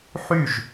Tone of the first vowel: falling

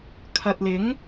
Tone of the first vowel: low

